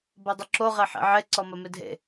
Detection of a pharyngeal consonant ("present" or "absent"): present